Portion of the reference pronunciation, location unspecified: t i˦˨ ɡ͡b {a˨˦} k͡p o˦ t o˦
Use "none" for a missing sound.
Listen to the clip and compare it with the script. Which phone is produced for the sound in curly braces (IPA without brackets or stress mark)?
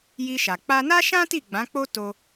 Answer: ã˨˦